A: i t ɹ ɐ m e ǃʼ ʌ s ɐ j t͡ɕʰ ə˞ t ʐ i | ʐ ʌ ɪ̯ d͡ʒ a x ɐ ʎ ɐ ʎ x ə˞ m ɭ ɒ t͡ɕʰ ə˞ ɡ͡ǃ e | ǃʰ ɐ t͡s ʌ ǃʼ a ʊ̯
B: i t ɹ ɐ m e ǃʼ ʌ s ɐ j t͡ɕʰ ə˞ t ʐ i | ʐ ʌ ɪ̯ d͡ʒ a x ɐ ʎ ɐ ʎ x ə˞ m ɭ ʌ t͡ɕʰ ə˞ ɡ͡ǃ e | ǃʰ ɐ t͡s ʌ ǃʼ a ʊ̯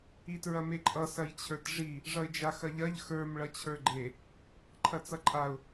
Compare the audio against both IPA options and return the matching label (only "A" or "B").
B